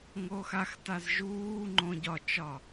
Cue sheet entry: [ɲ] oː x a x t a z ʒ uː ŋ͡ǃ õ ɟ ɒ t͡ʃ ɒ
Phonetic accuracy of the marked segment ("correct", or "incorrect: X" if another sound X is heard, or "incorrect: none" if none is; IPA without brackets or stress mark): incorrect: ŋ